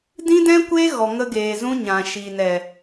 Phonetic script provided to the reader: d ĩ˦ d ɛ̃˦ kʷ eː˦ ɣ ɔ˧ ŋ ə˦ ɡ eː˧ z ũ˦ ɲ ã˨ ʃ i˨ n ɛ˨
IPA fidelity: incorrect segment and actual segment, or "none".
none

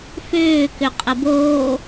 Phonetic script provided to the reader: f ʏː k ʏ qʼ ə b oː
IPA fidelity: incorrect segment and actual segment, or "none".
none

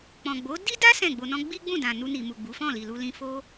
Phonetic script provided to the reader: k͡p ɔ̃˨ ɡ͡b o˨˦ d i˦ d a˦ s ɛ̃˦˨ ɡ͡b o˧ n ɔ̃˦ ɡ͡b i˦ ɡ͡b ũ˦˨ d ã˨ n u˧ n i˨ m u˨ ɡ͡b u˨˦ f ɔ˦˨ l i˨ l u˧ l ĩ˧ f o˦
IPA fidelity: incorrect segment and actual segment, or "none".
ɔ˦˨ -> ɔ̃˦˨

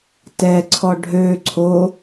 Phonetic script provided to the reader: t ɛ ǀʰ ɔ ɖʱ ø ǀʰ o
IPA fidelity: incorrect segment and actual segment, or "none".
none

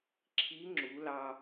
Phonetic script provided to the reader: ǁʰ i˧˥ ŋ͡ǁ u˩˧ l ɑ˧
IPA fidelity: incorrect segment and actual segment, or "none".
none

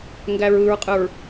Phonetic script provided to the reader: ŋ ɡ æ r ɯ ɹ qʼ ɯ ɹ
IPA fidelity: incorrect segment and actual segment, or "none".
r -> ɹ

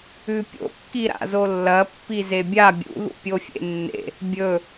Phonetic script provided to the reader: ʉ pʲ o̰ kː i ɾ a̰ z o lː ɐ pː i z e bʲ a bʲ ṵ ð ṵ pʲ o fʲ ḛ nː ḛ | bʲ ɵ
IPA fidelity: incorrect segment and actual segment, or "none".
none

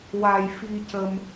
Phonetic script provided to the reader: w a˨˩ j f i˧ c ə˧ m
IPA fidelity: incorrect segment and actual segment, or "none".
none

